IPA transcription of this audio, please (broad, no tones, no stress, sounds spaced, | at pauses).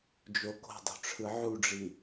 d͡ʒ o k o̤ dˤ o̤ ʈ͡ʂʰ ɯ ʕ u ɖ͡ʐ i